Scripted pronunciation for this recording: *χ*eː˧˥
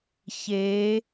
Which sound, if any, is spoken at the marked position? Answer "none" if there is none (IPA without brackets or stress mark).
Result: ç